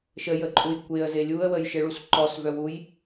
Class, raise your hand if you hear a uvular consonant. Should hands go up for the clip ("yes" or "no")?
no